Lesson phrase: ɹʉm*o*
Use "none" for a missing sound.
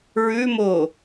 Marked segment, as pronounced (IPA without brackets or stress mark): o